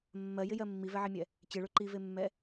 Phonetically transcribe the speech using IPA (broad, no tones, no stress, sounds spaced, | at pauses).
mː ɜ j ɪ j ɜ mː i v ɛ ʕ i mʲ ɛ | t͡ɕ ɪ ɭ ɵ ǃ i v e mː ɛ